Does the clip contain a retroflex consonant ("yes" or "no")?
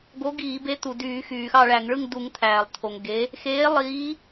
yes